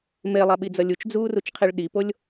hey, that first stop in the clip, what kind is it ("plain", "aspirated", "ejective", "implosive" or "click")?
implosive